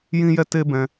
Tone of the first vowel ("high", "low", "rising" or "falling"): high